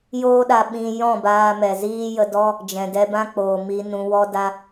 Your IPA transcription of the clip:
joː˦ɗa˧ ɓĩ˧ jɔ̃˦˨baː˧mɛ˨ziː˦ jə˧dɔ˦ | d͡ʒɛ̃˨dɛ˧bã˦k͡poː˨ mi˧nũ˧wɔ˦ da˦

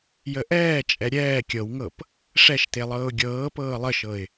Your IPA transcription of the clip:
jəʔɛːt͡ʃʼɛ ɾʲɛː kʲɤwŋɤp | ʂɛʃte lˠɤːʊ̯ɡʲɤːpɤː lˠəʃɤɪ̯

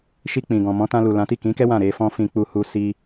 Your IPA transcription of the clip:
ʃi˧k͡pĩ˨ ɡɔ̃˨mɔ̃˨˦ tã˧lu˨ lã˨˦ti˦˨ kĩ˨˦kɛ˦ wã˦˨ ɾe˧fɔ̃˦ fĩ˧k͡pu˧hu˧ si˧

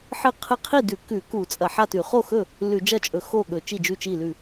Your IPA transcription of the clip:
ħɨ˥˩qʰɨ˥˩ qʰi˥˩dʉ˧˩˧ kʉ˧˩˧ku˧˩˧t͡sʼɐ˧˩˧ ħa˥˩tʉ˧˩˧ χo˥˩xɵ˥˩ | lʉ˧˩˧d͡ʒɐ˥˩t͡ʃʼɵ˧˩˧ xo˥˩ɠɵ˧˩˧ t͡ʃi˥˩d͡ʒʉ˥˩t͡ʃi˥˩lʉ˥˩

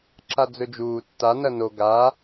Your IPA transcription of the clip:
ǁad͡zɵd͡ʒuː tːa nɐno ɡa

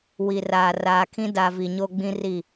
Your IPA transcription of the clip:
wi˨raː˨raː˨kʰĩ˦ da˨ vi˨ɲo˦ɡ͡bĩ˦ri˦˨

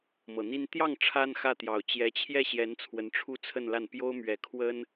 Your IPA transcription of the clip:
mɤ˨˩n̪i˥n t̪jɑ˥˩ŋ ʈ͡ʂʰa˥nxä˥˩t̪jɑ˨˩ʊ̯ t͡ɕjɛ˧˥t͡ɕʰjɛ˥˩ɕjɛ˧˥n t͡sʰwə˧˥nʈ͡ʂʰu˥˧t͡sʰə˥˧nla˥˩n pjo˥ʊ̯mɥɛ˧˥kʰwə˥n

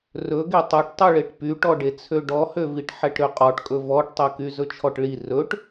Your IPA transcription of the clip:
rɵɡe tˤœʈtˤyɭeʈ pyʈɔɖet͡sʰø ɖɔhøviʈ ħɛʈɾøqʼɔʈkʼɵ vɔʈtˤœky zɵt͡ʃʰɔʈɭi rɵʈ

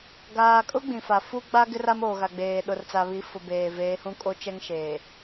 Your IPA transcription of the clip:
ɡaː˨kʼʊ˦ ɡ͡bĩ˨fa˨ fu˦ɡ͡ba˦ɡɪ˦r a˦moː˨ɣa˨ɡ͡beː˨ ɗʊ˨rt͡sa˨βi˨˦ fʊ˨beː˨veː˨˦hũ˦ kʼo˦t͡ʃɛ˦ŋʃeː˨

